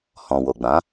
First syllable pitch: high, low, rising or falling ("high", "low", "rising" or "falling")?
low